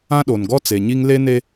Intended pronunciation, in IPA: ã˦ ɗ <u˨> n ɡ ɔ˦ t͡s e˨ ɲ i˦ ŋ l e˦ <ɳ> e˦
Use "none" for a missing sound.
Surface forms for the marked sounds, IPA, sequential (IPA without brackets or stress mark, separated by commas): o˨, n